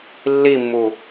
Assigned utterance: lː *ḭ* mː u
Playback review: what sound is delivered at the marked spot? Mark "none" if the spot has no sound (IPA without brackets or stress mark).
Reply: i